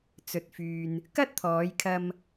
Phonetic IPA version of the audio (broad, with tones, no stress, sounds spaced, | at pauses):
t͡s ɵ˨ t̚ f yː˨ n | k ɐ˥ t̚ t̪ʰ ɔː˨˧ j kʰ ɐ˧ m